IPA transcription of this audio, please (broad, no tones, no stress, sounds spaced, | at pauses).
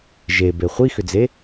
ʒ e b e χʷ i x ʏ d͡z e